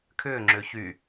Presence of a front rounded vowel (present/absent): present